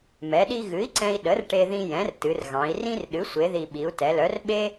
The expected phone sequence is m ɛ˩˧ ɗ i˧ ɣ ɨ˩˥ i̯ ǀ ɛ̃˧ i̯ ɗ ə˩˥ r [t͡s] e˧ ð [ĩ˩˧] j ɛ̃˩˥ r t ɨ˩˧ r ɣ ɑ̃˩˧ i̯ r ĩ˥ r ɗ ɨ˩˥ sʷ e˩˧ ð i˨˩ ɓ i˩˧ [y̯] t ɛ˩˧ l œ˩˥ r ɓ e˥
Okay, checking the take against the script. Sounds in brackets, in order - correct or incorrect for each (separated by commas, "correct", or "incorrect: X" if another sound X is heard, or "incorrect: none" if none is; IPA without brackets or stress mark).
incorrect: ʈ, incorrect: ĩ˧, incorrect: u̯